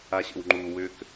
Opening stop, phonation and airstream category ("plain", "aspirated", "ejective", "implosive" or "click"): click